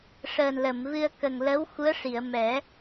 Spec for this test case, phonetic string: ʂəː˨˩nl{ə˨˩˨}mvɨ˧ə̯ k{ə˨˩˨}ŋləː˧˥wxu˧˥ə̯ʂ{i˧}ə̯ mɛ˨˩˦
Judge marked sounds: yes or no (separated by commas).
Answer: yes, no, no